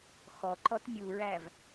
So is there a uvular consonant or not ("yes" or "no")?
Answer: no